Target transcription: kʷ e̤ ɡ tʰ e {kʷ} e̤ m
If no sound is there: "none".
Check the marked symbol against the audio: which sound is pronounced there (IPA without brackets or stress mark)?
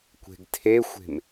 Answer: xʷ